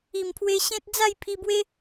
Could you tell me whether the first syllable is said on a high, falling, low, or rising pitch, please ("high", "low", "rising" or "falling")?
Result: low